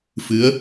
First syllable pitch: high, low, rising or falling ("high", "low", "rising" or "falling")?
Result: rising